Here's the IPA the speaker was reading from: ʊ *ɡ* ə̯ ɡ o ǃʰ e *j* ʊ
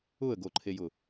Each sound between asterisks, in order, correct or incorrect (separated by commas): incorrect, correct